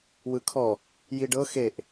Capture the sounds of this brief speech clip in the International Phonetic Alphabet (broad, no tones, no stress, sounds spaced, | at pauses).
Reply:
w ɯ kʰ ɔ | j i ɖ ɤ x e ʔ